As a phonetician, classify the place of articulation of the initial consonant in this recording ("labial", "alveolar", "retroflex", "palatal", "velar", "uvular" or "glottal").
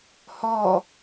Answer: glottal